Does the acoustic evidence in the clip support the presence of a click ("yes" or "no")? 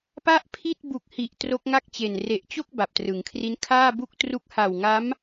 no